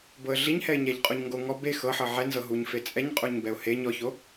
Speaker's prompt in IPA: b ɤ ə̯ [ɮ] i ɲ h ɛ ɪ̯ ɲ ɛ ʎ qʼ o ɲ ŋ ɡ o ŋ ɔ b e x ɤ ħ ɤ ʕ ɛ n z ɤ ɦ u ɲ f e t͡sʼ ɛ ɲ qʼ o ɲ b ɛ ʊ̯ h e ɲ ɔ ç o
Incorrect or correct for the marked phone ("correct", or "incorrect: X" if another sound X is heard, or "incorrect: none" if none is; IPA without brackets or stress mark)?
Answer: correct